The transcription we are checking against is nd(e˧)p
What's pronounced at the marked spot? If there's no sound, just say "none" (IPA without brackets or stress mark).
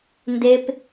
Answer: e˧